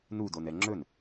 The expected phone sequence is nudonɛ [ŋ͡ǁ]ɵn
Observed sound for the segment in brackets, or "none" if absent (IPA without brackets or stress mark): ŋ͡ǁ